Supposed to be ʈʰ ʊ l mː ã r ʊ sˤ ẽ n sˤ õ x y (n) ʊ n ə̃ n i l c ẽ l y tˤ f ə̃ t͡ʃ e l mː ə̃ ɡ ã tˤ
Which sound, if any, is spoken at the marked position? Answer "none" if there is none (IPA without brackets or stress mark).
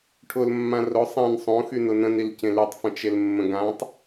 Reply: n